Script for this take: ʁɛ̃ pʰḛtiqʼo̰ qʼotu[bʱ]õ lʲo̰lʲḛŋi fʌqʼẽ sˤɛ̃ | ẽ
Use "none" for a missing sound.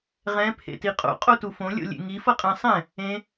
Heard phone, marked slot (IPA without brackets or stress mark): f